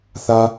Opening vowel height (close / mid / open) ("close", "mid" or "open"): open